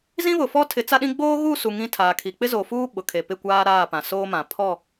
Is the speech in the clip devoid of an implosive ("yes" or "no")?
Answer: no